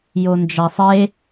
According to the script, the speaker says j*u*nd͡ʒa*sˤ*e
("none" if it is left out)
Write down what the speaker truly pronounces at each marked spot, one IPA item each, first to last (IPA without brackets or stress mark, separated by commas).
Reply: o, sˤ